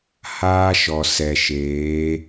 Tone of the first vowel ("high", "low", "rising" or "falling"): high